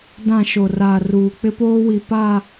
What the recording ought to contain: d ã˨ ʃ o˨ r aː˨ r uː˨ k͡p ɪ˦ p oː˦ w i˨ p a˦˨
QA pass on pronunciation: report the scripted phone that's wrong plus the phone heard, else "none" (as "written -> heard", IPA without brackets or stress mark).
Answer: none